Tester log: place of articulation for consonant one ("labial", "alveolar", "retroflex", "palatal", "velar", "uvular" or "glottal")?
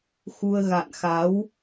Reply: velar